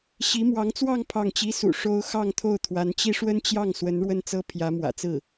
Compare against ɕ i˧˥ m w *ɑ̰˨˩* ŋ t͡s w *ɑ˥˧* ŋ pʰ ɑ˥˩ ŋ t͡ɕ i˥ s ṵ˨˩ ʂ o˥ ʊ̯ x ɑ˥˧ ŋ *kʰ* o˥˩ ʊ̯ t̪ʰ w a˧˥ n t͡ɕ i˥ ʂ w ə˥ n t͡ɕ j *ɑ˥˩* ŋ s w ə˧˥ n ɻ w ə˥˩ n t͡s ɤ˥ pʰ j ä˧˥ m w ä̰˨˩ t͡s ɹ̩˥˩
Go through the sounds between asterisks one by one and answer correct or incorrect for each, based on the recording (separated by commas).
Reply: incorrect, correct, incorrect, correct